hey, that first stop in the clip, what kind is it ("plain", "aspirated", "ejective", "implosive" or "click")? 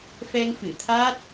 aspirated